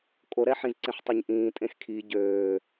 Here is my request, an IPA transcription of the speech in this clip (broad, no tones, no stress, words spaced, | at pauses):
kʼoɾɛħĩzǀẽħ tˤoɲʔĩː tʼẽxkʰi ɟøː